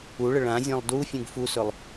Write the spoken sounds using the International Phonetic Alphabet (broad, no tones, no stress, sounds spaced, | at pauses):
u ɭ ə ɭ ã zʲ ẽ lˠ d u fʲ ũ ɡ f u s ɵ lˠ